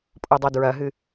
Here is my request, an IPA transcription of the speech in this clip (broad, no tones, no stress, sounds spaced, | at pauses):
pʼ o dˤ ɐ d ɹ ɐ ɦ ɨ